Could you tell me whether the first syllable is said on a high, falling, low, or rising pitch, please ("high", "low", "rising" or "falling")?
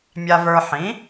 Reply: low